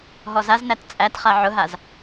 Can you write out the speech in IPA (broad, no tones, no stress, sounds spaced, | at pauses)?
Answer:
ɦ ɔ z a z n æ t t͡sʼ æ t χ a ʕ ʊ ɦ a z